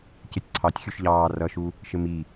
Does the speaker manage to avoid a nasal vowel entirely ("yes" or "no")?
yes